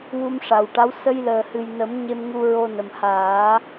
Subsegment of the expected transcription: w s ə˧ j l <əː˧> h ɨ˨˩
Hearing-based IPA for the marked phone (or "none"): əː˨˩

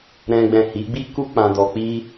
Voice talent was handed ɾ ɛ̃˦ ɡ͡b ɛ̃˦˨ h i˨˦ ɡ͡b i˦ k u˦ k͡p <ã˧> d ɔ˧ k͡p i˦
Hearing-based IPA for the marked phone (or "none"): ã˧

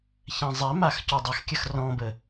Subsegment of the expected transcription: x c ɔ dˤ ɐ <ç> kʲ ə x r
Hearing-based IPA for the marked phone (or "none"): x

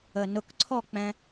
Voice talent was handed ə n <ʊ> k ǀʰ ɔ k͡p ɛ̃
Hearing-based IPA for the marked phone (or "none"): ʊ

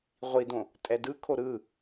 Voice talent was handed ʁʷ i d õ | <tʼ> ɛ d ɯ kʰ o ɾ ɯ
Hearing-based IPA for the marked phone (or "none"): tʼ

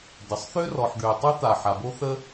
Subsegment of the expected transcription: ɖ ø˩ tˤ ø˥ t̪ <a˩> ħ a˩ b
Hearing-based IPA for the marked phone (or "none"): a˩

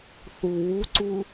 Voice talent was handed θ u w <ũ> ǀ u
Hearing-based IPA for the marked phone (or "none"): u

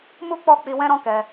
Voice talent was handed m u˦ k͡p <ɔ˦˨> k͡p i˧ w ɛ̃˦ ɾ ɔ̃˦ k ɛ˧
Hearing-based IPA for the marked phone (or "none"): ɔ˦˨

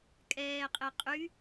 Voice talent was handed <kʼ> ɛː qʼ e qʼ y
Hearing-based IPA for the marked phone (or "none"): kʼ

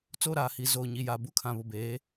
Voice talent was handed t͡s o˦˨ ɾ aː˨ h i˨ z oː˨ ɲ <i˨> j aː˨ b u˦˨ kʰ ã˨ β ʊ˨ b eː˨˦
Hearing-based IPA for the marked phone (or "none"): i˨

